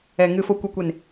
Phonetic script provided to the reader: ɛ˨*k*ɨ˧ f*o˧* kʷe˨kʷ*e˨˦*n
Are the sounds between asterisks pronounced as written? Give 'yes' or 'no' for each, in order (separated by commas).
no, yes, no